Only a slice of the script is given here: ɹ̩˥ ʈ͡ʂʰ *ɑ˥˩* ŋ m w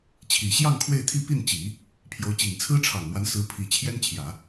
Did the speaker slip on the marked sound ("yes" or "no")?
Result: yes